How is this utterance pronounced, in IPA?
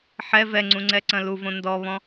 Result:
ħɛ vɛŋ͡ǀũŋ͡ǀɛǀɐ̃ luvõ ndɔβɔ̃

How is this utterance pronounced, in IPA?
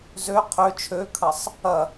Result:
zø qʰø t͡ʃʰøkʰɐsˤ | ɐ

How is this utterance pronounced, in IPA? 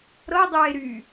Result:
ɾɤdˤeː ɾy

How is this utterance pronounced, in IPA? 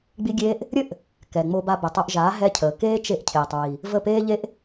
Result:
ɡ͡bi˦ɡʲeː˦ʔ | ɾʲɘ˦ʔ | kɛ˨ŋ͡mo˧ba˧bɘ˨ tˤo˧ʔʒaː˨˦ ɦɛ˦cʰəː˨ keː˦t͡ʃe˧ʔ cʰeː˨tˤɹi˨ | və˦˨ peː˦ʎe˦ʔ

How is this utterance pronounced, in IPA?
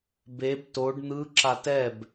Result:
beb toɖ n̪ɯ ǁatɛb

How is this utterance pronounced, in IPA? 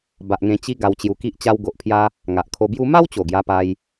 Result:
ba˨ʔŋẽ˧ t͡ɕi˧ ɡa˧wt͡ɕju˧ki˦ʔ t͡ɕa˧w ɡo˨ʔpʰja˧ | ŋa˨ʔkʰo˧bju˦ ma˦wt͡ɕo˨˩ ɡja˧pa˧j

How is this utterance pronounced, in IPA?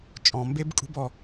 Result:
t͡ʃʼɔ̃˨mbe˦b kʼṳ˦bɔ˧

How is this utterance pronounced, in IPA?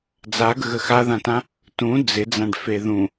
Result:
d͡zaɡəɣə xaðãtã | tũ d͡zɪd͡zãɖfe ðũ

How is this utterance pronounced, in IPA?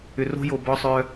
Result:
ʏ˧ro̤˦jo˧ bɔ˦sˤœ˦

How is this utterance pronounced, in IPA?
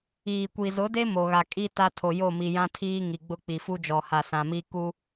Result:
iː˨kʷi˨zʊ˨˦de˦ mo˨ɣa˨kʼi˦ ta˦tʰo˨jo˦˨ mi˨jã˦tʰiː˦ ŋi˨ɡ͡bʊ˦ k͡pi˨fu˦d͡ʒɔ˨ ha˨sã˨mi˦ ku˦

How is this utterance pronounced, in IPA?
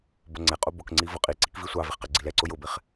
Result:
bʊŋ͡ǀɛqʼu bʊkŋ͡ǀi vʊqʼiǀik visʷɑvɪχ qɛɡ͡ǀilɛǀʊ jʊbɪχ

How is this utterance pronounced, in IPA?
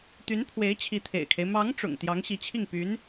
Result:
t̪y˧˥npʰwe˧˥ɪ̯ t͡ɕʰi˧˥t̪ʰḛ˨˩ɪ̯kʰe˦ɪ̯ mɑ˧˥ŋ ʈ͡ʂʊ̰˨˩ŋ t̪jɑ˧˥ŋɕi˧˥t͡ɕʰi˥˩ŋ py˧˥n

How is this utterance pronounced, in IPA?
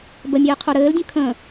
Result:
bəmʲɘːqʰo ɾɘːldʲə̃ kʰə̃

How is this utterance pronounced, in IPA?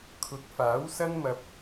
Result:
kʰʊ˨˥k̚faː˨˥wsɐ˥nmɐ˧p̚

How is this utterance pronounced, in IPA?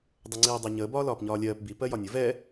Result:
dˤʊŋ͡ǀiːdˤɛɲəː bɒːlɒːpɲɒːlʲɜːp bi pɜjɒnʲʊ vɛ

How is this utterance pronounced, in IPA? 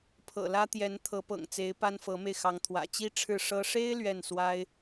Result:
pʰɤ̰˨˩lä˥t̪jɛ˧˥n t̪ʰɤ˧˥pɤ̰˨˩ŋt͡se˧˥ɪ̯ pa˥nfɤ˧˥me˧ɪ̯ xɑ˧˥ŋt̪ʰwä̰˨˩ t͡ɕi˥ʈ͡ʂʰɻ̩˥˩ʂɤ˥ ʂe˥ɪ̯ lɥɛ˥˩nswa˥ɪ̯

